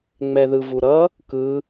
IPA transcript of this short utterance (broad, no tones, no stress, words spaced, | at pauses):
ŋ͡mɛðɯvuɾʌ | kɯ